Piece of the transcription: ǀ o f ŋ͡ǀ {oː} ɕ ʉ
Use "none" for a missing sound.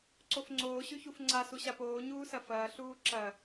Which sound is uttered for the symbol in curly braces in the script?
oː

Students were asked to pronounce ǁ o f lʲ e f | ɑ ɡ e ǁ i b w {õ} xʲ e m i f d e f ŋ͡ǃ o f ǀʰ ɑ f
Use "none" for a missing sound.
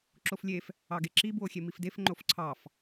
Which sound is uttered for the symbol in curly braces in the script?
o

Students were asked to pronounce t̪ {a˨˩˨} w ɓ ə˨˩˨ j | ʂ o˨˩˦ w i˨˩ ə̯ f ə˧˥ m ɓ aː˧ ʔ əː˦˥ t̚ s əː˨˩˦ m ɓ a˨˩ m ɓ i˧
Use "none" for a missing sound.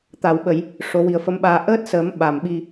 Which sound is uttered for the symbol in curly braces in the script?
a˨˩˨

